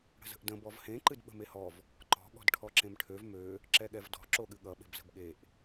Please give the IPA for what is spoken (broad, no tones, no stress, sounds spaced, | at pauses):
ɽ ə̤ z ə̤ ʔ d ə̃ b ɔ v h ẽ ǃ ɨ d ɓ ə̤ m e h ɔ v | ǃ ɔ̤ ɠ ɔ̤ d ʈʰ ɔ ǁ ẽ m ʈʰ ø v m ø | ǁ ɛ ɠ ɛ v d ɔ̤ ǁ o ɠ ɨ ɠ ʌ ɓ e̤ b z ə̤ b ɠ e ʔ